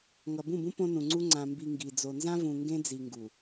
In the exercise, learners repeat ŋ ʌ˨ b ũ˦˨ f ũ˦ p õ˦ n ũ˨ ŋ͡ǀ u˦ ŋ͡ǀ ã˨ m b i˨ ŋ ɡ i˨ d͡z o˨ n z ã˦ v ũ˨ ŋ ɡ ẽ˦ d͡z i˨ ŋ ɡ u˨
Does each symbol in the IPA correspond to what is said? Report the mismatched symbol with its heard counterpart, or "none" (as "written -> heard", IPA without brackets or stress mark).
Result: f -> b